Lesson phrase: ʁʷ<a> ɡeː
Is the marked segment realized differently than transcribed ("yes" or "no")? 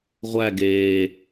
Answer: yes